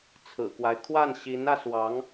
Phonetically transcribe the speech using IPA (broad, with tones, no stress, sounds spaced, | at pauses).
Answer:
t͡sʰ ɹ̩˨˩ k w a˦ ɪ̯ kʰ w a˥˩ n ɕ i˧˥ n ä˧ s w ɑ˧˥ ŋ